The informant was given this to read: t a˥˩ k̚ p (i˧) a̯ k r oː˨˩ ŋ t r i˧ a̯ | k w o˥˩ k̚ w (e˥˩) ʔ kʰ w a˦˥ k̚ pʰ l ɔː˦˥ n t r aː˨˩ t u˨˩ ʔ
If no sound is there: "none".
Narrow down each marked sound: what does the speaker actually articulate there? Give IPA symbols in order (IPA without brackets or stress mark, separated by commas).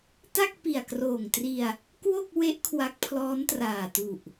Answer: i˨˩, e˦˥